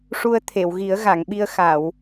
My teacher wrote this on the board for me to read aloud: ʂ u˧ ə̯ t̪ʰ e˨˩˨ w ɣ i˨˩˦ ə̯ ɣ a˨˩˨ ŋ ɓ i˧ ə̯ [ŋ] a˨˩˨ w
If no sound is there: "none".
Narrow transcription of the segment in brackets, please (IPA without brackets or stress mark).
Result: x